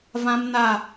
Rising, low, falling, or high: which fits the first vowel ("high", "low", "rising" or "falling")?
high